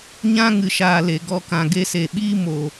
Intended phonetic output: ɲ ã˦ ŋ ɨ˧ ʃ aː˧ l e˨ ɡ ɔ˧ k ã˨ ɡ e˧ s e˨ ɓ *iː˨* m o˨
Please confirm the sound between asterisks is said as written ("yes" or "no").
no